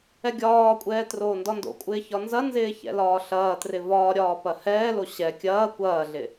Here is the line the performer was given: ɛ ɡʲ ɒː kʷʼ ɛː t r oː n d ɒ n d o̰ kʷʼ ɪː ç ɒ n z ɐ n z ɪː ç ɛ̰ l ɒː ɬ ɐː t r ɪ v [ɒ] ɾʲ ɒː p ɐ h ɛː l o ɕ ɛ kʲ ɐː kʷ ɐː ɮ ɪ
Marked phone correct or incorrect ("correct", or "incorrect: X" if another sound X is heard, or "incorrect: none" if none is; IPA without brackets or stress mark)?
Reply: incorrect: ɒː